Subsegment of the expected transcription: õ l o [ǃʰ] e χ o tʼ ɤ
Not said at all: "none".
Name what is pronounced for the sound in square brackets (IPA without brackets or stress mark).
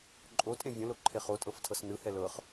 ǃʰ